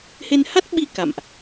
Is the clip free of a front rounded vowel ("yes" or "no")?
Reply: yes